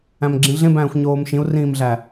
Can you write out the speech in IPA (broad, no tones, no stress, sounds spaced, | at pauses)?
æ̃ m ɡ͡ǁ ĩ ɮ ẽ b æ̃ː xʷ ɲ oː m ʃ ĩ u̯ r ĩː m ɮ æ